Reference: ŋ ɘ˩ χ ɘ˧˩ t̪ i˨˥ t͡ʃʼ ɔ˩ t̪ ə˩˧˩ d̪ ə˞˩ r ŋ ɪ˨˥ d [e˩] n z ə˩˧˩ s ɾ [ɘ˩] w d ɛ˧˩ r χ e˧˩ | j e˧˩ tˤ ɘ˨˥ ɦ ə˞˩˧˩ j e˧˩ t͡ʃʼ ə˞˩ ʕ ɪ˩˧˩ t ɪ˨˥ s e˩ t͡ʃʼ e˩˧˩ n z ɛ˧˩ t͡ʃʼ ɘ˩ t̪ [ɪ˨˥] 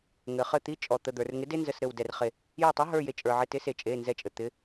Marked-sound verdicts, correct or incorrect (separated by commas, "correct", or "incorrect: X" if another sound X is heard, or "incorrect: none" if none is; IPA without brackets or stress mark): incorrect: e˦, incorrect: ɘ˧˩, correct